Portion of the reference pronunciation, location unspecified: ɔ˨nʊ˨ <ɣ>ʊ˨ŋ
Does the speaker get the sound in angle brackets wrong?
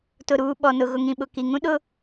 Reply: no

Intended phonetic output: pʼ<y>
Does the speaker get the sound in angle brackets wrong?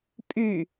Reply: no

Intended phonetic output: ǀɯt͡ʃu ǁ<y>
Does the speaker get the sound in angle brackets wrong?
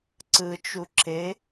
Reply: yes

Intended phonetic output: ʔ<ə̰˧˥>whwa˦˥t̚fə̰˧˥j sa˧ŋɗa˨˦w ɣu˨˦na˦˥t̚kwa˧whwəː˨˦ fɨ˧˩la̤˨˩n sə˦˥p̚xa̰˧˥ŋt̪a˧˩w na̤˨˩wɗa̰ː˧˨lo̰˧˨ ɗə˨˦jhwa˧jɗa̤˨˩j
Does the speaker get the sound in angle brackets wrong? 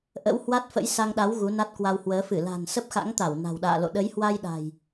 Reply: no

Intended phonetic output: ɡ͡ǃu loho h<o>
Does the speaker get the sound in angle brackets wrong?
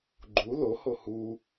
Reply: yes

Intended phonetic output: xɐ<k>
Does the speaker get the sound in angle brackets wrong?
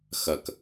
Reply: no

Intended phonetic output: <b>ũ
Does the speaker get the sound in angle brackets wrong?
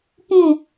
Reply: yes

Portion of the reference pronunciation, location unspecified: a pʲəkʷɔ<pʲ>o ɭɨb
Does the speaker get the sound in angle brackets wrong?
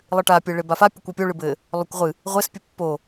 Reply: no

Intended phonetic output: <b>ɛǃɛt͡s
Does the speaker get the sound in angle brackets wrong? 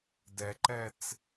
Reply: yes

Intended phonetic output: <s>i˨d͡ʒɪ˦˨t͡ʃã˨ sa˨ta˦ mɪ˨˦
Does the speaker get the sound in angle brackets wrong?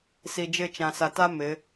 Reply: no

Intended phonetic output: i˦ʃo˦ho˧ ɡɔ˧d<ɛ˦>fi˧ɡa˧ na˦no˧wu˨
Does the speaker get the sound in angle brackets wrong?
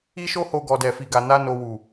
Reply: yes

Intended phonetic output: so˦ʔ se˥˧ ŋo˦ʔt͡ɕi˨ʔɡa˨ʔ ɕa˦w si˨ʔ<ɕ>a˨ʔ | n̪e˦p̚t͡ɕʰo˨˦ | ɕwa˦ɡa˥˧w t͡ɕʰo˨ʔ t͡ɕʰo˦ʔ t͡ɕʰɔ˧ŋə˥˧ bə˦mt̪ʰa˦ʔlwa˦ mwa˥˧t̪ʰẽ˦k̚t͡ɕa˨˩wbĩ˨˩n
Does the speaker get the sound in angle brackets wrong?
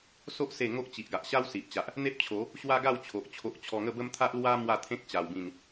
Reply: yes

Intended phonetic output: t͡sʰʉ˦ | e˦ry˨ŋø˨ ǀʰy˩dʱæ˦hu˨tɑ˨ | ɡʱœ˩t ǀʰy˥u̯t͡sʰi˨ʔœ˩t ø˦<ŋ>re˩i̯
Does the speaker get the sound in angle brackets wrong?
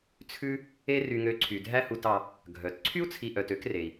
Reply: yes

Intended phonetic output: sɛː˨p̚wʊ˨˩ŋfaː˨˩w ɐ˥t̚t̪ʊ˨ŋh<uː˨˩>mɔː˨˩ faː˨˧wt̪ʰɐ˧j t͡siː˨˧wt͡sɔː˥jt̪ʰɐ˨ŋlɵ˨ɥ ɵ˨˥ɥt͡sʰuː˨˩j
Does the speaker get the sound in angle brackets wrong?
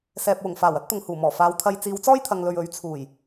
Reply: no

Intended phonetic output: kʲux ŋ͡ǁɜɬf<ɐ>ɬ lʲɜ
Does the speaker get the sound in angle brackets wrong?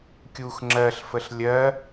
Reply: yes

